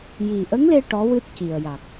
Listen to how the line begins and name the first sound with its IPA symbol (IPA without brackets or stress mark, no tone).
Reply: j